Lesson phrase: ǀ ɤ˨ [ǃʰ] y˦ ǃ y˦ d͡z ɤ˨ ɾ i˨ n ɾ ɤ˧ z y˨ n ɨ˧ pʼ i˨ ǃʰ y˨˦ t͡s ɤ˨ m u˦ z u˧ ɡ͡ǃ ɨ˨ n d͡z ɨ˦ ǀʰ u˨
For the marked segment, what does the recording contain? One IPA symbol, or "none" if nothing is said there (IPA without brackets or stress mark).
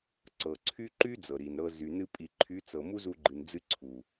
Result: ǀʰ